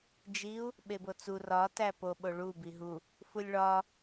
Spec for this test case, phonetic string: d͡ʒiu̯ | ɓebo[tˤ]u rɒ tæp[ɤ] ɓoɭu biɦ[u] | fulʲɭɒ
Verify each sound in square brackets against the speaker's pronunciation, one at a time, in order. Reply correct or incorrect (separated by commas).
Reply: incorrect, incorrect, correct